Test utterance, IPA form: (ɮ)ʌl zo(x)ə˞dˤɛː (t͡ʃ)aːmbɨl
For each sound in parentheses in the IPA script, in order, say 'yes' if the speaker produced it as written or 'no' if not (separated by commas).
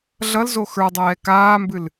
yes, yes, no